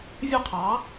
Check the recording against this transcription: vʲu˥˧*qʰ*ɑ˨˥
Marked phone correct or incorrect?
correct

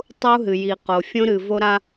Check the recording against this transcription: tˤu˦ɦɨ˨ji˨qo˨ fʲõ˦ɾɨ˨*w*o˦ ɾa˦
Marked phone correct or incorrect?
incorrect: v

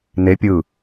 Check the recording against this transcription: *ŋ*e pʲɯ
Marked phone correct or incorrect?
incorrect: n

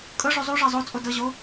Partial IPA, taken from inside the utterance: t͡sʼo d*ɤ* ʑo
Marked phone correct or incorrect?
correct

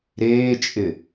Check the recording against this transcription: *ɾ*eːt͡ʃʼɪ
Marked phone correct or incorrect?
correct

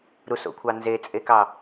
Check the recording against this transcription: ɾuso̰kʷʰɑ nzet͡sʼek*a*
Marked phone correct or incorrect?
incorrect: ɑ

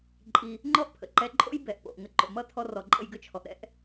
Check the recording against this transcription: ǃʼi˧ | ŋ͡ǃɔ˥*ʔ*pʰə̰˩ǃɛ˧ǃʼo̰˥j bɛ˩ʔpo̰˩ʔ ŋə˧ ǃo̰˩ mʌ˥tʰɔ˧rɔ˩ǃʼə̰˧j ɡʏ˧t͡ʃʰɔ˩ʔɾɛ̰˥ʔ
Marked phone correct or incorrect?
correct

